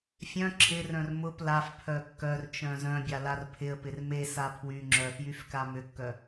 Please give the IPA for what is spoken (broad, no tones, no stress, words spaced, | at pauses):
fʲœ̃ ǁʰɪrœ̃r mʊp laf pʰœkːœrt͡ʃœ̃ zœ̃bʲa larpʰɪə̯pɪr mesa pʰwyŋ͡ǁœ fjyfkamʏkːœ